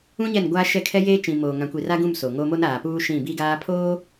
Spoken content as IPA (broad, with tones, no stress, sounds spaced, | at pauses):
ũ˦ ɲ ɛ˦˨ n ɡʷ aː˦ ʃ ɛ˦ kʰ ɛ˦ j eː˦ t͡ʃ ĩ˨ m oː˨ ŋ ã˨ kʷ i˨ r a˦ ɡ ũ˦˨ m s o˨ ŋ o˦ m o˦ n aː˨ p uː˦ ʃ ĩ˦˨ b i˦ ɡ aː˦ pʰ oː˦